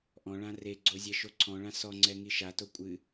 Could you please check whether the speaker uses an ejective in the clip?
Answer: yes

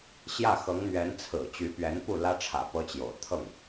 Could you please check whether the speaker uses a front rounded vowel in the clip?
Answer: yes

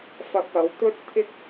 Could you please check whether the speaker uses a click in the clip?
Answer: no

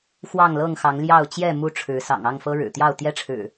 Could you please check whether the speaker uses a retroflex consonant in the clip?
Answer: yes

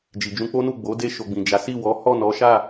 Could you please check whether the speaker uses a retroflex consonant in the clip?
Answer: no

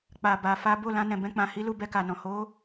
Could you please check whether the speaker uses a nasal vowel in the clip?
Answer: yes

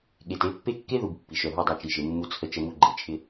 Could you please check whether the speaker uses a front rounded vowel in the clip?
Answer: yes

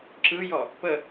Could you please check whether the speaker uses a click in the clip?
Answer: yes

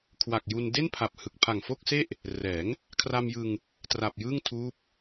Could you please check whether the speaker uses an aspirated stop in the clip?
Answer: yes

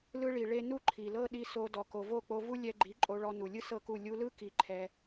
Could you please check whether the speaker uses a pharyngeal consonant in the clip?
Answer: no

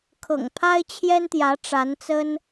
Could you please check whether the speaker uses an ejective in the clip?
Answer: no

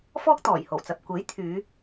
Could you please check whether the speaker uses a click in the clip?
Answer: no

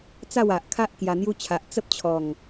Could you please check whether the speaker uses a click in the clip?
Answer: no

